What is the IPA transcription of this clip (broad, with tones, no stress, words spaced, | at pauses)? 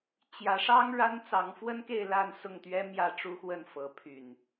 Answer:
t͡ɕjä˨˦ʂɑ˦ŋ ɻa˦n t͡sɑ˨˦ŋfwə˦nke˥˨ɪ̯ la˥˨nsʊ˥˨ŋt̪ɥɛ˦ mjä˥˨ʈ͡ʂu˦xwə˥˨nfɤ˨˦ pʰy˨˩n